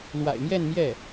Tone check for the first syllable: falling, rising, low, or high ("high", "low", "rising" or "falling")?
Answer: low